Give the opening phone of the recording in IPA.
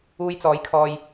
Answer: uː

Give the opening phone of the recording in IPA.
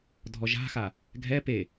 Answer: dʱ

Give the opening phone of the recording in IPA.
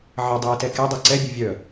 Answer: ʕ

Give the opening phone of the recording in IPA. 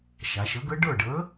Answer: ʃ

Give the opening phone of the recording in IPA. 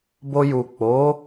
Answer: b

